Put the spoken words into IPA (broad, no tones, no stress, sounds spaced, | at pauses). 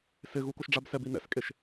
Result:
s ɪ ɣ u k o ʃ ɖ͡ʐ a b s ɛ b i n ɛ̰ s kʼ e ʃ